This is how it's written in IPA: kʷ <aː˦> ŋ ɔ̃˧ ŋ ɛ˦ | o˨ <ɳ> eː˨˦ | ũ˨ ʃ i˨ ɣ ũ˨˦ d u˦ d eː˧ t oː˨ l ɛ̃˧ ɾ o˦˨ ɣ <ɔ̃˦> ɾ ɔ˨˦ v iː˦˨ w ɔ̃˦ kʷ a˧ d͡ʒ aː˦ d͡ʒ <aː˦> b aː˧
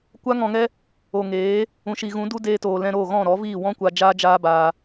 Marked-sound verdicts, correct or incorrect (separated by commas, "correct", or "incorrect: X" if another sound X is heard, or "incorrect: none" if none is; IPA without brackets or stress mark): incorrect: a˦, incorrect: ŋ, incorrect: ɔ̃˦˨, correct